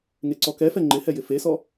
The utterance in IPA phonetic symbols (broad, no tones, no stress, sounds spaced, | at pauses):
ŋ e ǀ ɔ k ɛ f ɛ ŋ͡ǃ ɪ h ɛ j ɪ f e s ɔ